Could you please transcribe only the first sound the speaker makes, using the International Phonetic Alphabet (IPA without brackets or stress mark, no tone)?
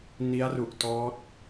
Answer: n